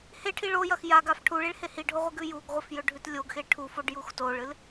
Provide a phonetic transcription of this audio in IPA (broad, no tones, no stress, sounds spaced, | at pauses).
h e ʈʰ i ɭ o j ɐ x j a ɡ a f ʈʰ u ɭ i ɭ h e h i ɖʱ o ʁʷ i ɡ ʉ j u ɡ ʁʷ ɐ f j ɵ ɖʱ ʉ t lʲ o ɡ x e ʈʰ u f o ɖ j u x t o ɭ ɨ l